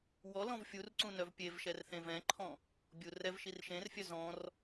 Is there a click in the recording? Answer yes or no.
yes